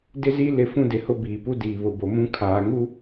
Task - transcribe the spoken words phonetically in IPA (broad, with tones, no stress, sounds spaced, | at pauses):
d ɪ˦ z i˦ l ɪ˦ f ũ˦ d ɪ˨ h ʊ˦ b iː˨ p u˦ d iː˨ β ʊ˨ b o˨ m ũ˦ kʰ aː˨ ŋ u˦